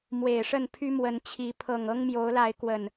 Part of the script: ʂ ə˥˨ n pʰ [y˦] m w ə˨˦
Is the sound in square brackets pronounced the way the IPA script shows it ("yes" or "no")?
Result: yes